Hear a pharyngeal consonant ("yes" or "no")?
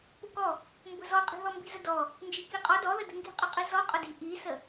no